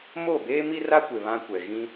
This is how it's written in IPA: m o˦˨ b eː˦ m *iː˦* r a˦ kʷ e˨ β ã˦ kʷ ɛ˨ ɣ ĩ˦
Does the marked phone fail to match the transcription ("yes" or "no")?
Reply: yes